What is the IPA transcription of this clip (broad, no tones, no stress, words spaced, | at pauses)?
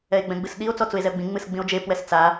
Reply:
ɛe̯ɡ͡bɛ̃ɡ͡bɨsɗio̯ t͡sɔt͡sue̯zɛo̯ɡ͡bĩ ŋ͡mɨsɡ͡bĩo̯d͡ʒe pwɛst͡sa